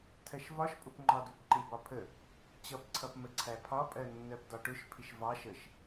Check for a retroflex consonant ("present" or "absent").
present